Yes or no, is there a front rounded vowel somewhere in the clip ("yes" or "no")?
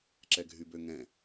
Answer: yes